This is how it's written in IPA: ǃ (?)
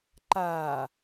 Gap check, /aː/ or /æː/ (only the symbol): aː